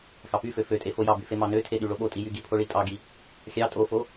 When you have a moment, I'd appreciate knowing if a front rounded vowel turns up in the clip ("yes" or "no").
yes